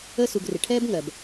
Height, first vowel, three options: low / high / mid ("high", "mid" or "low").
mid